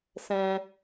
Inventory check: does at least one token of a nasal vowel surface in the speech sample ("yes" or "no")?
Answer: yes